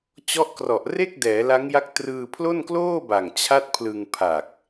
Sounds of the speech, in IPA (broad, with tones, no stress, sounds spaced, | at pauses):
t͡ɕ ɔ˦˥ ʔ k r ɔ˨˩ ʔ r e˥˩ k̚ d ɛː˩˦ l a˦˥ ŋ j a˦˥ k̚ t r ɯː˧ pʰ l o˥˩ n k l oː˥˩ b a˨˩ ŋ t͡ɕʰ a˥˩ t̚ pʰ l ɯ˧ ŋ pʰ a˨˩ k̚